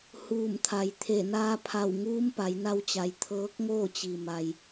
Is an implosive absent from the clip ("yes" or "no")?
yes